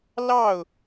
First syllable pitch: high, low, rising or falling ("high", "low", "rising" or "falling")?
falling